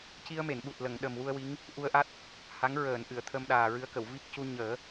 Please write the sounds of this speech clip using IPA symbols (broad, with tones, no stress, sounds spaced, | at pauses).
c i˧ ə̯ m e˨˩˨ n ɓ u˨˩ t̚ l ə˨˩˨ ŋ ɗ ə˨˩ m w u˧ ə̯ w i˧˥ ŋ | ʔ u˧ ə̯ ʔ a˦˥ t̚ | h a˧˥ ŋ ɹ əː˨˩˨ n ʔ ɨ˨˩˨ ə̯ t̪ʰ ə˧ m ɗ aː˨˩ ɹ ɨ˧˥ ə̯ k ə˨˩˨ w v i˦˥ k̚ c u˧ ɲ əː˨˩˦